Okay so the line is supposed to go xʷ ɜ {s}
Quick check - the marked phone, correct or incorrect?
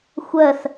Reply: correct